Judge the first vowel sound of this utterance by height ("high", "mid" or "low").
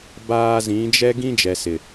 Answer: low